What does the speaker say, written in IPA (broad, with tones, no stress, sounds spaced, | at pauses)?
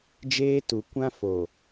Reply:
d͡ʒ eː˦ t u˨ kʷ ã˦ f o˨